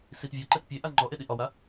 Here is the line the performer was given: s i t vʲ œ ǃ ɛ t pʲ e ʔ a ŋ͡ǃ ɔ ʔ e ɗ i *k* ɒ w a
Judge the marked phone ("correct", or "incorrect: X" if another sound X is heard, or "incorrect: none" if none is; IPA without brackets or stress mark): incorrect: ʔ